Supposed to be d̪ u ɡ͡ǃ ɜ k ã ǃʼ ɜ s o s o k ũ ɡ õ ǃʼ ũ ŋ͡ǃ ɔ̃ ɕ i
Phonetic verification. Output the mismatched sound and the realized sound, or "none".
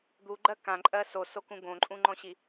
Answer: none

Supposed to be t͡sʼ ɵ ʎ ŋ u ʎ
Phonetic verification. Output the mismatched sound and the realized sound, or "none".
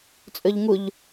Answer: none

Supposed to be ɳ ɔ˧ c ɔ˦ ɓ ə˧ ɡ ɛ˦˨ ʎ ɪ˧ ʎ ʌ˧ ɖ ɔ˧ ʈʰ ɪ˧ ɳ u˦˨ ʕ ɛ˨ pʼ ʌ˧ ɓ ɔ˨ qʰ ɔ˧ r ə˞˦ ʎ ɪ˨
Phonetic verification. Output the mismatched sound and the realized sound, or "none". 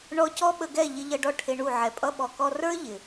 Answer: qʰ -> k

